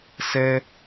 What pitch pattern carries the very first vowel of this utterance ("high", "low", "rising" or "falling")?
high